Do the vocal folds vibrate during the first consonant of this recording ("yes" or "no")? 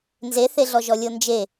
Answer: yes